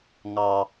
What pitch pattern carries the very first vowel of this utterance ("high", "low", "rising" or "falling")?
low